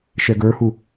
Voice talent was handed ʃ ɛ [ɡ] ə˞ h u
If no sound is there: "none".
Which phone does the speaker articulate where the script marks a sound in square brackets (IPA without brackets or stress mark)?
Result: ɡ